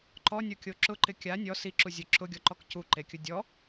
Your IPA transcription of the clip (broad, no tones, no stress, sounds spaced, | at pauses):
ǃ ɔ nʲ o kʲ o ǁ ʊ ǃ ɪ kʲ a nʲ ɔ s i ǁ u zʲ ʊ ǁ ʊ ɡʲ ɔ ǃ ɔ k c u ǃ e kʲ ʊ dʲ ɔ